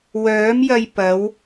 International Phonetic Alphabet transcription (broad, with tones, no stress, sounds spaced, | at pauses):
w œː˨˥ m j ɐ˧ j p ɐ˨˧ w